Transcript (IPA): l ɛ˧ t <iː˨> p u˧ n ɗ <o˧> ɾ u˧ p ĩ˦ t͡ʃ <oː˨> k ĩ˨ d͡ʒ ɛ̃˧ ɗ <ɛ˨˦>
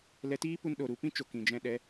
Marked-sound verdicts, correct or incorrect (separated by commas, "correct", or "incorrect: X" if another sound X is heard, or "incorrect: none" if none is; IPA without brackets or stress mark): incorrect: iː˦, incorrect: o˨, incorrect: o˨, correct